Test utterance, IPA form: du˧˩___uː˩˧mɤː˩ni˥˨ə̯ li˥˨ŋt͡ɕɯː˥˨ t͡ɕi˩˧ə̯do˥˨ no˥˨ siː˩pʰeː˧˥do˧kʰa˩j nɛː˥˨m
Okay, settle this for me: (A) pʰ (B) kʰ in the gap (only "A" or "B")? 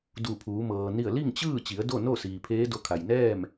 A